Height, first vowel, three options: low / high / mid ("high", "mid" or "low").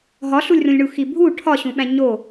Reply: low